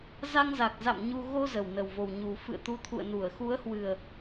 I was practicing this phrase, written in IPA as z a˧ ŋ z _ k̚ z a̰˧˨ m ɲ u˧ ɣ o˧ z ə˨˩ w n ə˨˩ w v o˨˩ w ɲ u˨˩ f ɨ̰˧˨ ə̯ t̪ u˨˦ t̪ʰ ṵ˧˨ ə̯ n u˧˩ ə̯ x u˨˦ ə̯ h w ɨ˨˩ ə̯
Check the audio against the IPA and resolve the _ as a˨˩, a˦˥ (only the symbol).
a˨˩